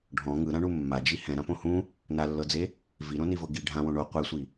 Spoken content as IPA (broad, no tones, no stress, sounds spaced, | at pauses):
ɖʱ ɔ̃ ŋ ɯ ɾ ã ɳ u mː a d͡ʒ i h ɛ̃ ɾ ã p õ h ũ | n a lː ɤ d͡z e | v i ɾ õ n i v ɤ ɡ i ɖʱ ã w õ ɳ o qʷ ɛ sʷ i